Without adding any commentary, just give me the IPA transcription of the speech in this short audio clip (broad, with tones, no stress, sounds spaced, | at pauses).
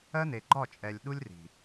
ɜ˦ n e˨ ɡ͡ǃ ɒ˦˨ t͡ʃʼ ɛ˨ lʲ ɗ u˦ lʲ r i̤˨